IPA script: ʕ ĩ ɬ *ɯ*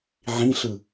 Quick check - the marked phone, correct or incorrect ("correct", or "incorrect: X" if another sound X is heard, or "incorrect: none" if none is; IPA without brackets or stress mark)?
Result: correct